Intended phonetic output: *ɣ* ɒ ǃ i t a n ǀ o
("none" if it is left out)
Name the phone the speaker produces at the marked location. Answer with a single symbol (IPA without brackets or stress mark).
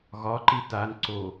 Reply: ɣ